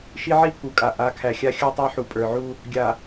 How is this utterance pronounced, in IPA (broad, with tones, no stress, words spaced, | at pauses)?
ʃi˦ʕi˦pʰu˨kʼa˨ ʔa˨˦kʰæ˨ xʲa˦xʲə˞˦tˤæ˦ ħu˨pʼə˞˨ʕu˦ | ɡʲa˨